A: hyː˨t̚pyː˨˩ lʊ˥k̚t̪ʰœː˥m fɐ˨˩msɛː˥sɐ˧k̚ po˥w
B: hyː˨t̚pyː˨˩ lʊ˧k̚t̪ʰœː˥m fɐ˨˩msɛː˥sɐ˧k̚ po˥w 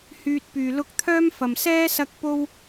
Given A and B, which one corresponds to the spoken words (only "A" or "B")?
B